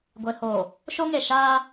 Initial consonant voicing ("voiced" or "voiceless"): voiced